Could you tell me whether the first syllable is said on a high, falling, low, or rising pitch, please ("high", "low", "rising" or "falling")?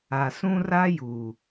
low